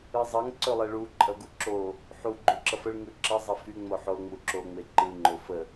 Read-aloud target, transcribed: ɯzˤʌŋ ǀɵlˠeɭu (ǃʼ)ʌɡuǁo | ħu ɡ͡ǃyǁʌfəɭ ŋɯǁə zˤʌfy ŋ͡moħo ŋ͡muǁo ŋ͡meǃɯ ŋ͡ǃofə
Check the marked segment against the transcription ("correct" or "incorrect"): correct